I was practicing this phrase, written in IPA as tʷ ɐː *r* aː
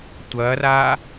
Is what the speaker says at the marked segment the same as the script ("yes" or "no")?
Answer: yes